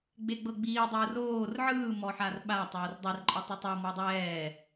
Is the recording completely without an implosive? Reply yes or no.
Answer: no